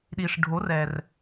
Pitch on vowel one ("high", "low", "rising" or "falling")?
low